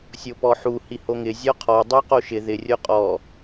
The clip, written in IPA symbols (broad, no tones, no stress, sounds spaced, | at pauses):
sʲ o p ɔ ħ u h i h o ŋ ɪ zʲ ɔ qʰ ɔ dˤ u q o ʃ ɪ ð ɪ rʲ o qʼ ɔ